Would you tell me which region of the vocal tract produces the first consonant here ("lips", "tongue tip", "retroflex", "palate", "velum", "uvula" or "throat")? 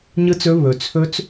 palate